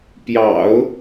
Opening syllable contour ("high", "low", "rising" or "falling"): low